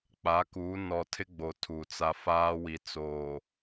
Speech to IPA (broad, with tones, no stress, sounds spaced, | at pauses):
k͡p a˨˦ k uː˨˦ n ɔ˨ tʰ ɪ˦ ɡ͡b o˨ tʰ u˨ t͡s a˦ f aː˦ w i˨ t͡s oː˨